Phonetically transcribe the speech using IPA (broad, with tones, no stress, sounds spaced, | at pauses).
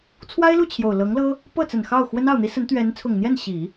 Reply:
t͡sʰ w a˥ ɪ̯ l u˥˩ t͡ɕʰ j o˨˩ ʊ̯ l ɤ˧˥ ŋ l ɤ˥ | p ɤ˥˩ t͡s ə˨˩ n x ɑ˥˩ ʊ̯ x w ə˥ n ɑ˥˩ ʊ̯ n̪ i˥ s ə˧˥ n t̪ ɥ ɛ˧˥ n t͡sʰ ʊ˨˩ ŋ n̪ j ɛ˥˩ n ɕ i˨˩˦